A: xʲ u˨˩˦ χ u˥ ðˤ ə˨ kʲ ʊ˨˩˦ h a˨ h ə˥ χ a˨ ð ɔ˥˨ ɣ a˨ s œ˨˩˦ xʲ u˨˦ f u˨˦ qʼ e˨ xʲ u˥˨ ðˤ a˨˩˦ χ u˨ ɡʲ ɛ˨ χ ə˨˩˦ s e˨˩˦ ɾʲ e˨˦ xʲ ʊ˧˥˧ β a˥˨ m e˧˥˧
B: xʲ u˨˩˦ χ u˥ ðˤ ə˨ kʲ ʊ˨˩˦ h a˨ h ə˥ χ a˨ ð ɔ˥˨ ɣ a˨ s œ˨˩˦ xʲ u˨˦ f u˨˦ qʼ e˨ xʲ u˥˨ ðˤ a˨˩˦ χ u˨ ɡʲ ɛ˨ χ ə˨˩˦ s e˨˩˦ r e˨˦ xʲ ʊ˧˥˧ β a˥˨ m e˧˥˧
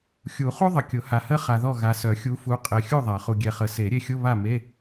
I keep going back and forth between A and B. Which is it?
A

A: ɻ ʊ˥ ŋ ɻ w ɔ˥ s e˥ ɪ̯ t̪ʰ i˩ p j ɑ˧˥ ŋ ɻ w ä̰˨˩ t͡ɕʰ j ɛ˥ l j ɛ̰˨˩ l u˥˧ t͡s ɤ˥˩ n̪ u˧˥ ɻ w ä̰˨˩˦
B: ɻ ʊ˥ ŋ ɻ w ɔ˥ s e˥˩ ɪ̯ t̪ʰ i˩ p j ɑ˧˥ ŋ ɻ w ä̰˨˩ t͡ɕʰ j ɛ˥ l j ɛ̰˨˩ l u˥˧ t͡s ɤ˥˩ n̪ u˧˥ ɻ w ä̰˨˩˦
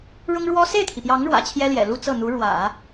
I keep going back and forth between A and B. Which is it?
B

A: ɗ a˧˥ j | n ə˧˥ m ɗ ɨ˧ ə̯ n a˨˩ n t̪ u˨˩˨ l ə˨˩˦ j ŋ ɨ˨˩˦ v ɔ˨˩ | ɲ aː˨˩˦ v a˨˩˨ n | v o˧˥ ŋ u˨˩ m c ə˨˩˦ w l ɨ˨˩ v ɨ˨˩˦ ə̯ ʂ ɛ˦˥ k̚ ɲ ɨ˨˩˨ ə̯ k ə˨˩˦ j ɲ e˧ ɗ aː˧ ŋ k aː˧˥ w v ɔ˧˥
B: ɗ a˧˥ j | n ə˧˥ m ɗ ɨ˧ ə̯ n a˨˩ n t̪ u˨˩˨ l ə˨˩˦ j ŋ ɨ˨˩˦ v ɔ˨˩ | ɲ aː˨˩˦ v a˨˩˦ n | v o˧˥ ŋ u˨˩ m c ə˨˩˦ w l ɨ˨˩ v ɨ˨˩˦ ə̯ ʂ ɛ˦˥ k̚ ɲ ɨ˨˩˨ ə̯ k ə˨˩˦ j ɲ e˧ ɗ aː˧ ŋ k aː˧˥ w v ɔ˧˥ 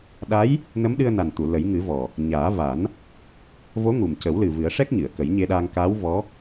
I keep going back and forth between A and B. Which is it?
B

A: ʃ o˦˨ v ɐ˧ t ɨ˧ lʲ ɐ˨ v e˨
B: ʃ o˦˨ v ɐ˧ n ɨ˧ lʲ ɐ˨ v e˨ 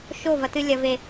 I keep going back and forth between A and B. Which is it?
A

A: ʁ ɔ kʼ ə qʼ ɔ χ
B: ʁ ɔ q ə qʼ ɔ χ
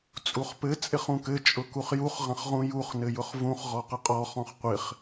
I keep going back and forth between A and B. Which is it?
B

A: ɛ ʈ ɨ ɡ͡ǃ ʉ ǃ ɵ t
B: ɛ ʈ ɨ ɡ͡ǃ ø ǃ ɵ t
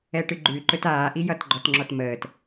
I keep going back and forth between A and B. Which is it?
A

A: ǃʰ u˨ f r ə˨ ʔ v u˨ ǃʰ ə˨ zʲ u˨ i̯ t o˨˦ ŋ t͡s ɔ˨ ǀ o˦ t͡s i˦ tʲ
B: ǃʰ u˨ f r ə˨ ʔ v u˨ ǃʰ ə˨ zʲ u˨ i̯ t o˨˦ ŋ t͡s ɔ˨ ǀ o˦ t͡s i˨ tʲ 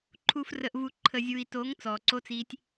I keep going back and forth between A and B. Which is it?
A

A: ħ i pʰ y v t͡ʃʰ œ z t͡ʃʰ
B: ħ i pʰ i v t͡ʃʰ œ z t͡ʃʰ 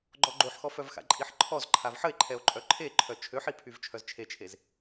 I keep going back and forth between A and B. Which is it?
A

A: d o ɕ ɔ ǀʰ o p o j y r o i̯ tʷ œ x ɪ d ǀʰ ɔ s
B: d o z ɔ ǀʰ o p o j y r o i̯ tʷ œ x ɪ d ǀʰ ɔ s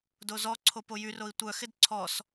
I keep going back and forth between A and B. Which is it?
B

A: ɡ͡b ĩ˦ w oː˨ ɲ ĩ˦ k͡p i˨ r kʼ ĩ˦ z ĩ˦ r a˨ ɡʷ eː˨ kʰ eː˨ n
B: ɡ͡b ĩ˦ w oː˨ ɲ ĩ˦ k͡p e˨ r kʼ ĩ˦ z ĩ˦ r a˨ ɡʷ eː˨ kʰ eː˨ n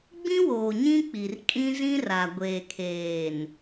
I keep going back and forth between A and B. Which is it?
A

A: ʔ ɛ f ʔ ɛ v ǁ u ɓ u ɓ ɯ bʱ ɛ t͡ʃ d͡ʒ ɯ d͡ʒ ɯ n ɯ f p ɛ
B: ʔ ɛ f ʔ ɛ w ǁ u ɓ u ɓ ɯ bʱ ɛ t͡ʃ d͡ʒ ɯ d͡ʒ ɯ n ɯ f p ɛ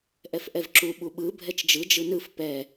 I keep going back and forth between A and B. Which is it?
A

